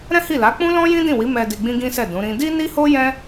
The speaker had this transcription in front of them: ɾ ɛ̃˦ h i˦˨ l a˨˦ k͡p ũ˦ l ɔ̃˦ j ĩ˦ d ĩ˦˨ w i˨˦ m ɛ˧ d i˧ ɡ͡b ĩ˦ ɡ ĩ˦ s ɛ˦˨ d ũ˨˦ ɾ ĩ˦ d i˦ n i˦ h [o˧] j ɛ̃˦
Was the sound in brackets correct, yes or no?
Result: no